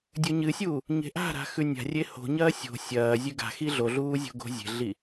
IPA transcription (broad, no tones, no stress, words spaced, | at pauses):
dʲɵɲɨsʲuː | ɲe̤ʔa̤ɾa̤ xʉnʲa̤rʲe ho̤ɲɐː sʲo̤ sʲɐː zʲʉɡa̤xi ɮoɮuː zʲo̤ɡo̤zʲe̤ɮi